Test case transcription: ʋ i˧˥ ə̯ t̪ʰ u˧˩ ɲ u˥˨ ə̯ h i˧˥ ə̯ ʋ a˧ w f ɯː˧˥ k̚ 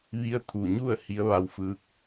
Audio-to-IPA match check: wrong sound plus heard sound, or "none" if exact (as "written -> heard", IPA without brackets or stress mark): none